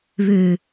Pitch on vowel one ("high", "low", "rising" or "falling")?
low